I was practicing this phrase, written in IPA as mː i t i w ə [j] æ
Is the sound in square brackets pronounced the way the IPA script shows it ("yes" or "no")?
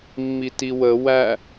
no